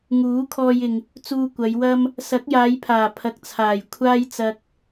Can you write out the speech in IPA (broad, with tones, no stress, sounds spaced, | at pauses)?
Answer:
ŋ uː˨˥ kʰ ɔː˧ j ɪ˨ ŋ | t͡s uː˧ kʷ ɐ˨˧ j w ɐ˥ m | s ɐ˨˥ k̚ j aː˨˧ j pʰ aː˨˩ pʰ ɐ˨ k̚ t͡sʰ aː˨˩ j kʷʰ aː˥ j t͡s ɐ˧ k̚